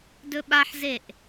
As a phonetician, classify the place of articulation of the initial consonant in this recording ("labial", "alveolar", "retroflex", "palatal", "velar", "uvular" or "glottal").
alveolar